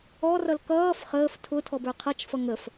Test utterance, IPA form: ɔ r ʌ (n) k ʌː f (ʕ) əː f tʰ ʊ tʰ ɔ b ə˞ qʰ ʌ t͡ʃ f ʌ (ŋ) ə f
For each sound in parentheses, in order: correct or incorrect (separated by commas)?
incorrect, incorrect, correct